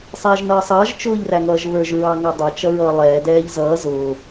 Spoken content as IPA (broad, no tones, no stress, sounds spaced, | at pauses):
sˤ ɛː ʒ n ʌː sˤ ʌː ʒ t͡ʃ ʊː ʎ r æ ŋ ʌː ʒ β ə˞ ʒ ɹ ɑ ŋ ɑ dˤ ə t͡ʃ ʌ ɹ ʌː lˠ ɛː d ɛː ʎ z ʌː z ʊː